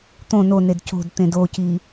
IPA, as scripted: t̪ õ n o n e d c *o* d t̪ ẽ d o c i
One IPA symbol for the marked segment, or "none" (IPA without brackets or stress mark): o̤